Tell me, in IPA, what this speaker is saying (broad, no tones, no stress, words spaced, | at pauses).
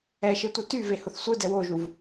ɛʃetʷɯ tyvehʊθ sʷɯdɛ woʒuv